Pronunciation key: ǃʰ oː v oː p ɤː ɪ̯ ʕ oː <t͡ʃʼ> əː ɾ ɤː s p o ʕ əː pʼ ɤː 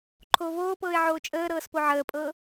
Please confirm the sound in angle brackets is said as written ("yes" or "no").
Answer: yes